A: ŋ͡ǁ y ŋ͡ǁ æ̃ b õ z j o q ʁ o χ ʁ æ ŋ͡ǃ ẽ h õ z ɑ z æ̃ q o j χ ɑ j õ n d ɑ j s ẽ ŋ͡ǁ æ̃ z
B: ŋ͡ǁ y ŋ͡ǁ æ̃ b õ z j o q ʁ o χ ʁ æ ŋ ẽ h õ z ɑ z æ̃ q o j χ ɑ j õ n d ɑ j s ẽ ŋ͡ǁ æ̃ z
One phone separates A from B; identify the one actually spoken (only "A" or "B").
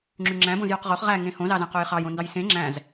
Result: B